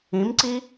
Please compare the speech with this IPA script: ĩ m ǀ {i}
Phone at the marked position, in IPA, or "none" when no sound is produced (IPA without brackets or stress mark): i